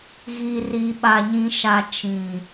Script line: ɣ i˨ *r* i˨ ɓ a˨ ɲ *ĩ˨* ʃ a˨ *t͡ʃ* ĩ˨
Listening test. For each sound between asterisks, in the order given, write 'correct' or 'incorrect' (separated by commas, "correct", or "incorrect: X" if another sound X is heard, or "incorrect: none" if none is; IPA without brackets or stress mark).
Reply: correct, correct, correct